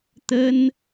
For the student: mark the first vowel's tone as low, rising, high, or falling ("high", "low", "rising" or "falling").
high